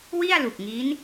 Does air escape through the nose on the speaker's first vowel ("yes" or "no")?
no